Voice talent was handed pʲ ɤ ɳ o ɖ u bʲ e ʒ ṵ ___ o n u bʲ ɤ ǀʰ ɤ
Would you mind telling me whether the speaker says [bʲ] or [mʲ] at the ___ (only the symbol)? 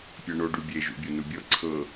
bʲ